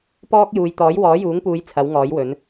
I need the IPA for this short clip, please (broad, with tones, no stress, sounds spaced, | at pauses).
p ɔː˥ k̚ j uː˨ j t̪ ɔː˨˥ j w ɔː˨˥ j uː˨˥ ŋ p uː˨˧ j t͡sʰ ɐ˨˥ w ŋ ɔː˨˥ j w ɵ˨˥ n